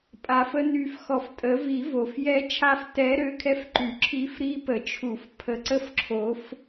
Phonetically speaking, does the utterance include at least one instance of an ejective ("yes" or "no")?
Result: yes